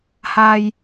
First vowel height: low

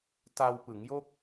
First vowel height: low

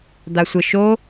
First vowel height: low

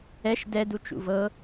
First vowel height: mid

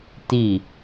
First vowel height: high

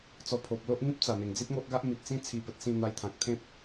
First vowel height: mid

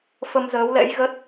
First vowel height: mid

